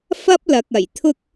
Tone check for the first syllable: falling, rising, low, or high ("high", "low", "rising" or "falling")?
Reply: high